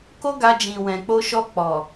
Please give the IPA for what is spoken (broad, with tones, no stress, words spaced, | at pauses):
ko˦ɡa˧d͡ʒĩ˨ wɛ̃˨k͡po˧ʃɔ˧ k͡pɔ˨